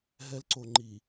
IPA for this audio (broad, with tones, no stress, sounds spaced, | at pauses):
ɦ ɛ˨ l ǀ o˨ ŋ͡ǃ i˨